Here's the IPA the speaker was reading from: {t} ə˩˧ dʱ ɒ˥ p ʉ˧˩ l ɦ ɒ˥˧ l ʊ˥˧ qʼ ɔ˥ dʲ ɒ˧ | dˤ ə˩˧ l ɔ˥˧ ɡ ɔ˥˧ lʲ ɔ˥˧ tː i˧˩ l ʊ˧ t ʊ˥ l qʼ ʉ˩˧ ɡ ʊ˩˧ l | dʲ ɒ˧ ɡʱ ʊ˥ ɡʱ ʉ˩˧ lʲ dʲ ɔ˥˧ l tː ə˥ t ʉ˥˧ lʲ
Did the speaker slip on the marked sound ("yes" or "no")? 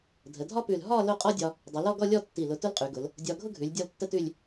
yes